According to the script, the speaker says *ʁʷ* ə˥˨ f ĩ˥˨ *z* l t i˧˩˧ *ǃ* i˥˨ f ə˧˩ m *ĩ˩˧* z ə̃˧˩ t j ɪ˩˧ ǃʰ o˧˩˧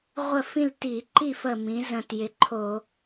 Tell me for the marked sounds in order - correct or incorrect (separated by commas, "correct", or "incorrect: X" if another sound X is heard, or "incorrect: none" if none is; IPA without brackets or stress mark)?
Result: correct, incorrect: none, correct, correct